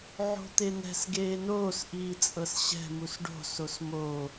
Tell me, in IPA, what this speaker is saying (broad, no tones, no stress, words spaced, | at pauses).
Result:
ʕo̤t̪enɛ̤s ɡeːnoːs ʔiːt͡sʼɤsɕɛ̤ musɖo̤ sosmoː